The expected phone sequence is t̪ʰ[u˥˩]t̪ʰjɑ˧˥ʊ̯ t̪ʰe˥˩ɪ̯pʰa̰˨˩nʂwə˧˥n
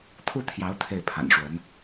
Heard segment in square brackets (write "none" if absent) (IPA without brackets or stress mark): u˥˩